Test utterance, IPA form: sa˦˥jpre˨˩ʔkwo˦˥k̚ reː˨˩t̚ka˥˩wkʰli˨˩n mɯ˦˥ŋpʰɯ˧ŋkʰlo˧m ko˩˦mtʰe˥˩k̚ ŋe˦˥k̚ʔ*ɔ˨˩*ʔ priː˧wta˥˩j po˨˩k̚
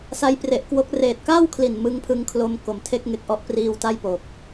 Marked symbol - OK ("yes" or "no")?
no